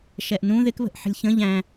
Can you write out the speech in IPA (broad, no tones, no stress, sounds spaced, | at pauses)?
ʃ ɛ ʔ n ũ ð ɪ k β ə̤ ʔ ħ ə̤ lʲ ç ə̃ ʎ æ̃